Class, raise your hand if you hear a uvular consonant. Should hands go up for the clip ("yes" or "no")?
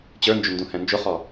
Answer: yes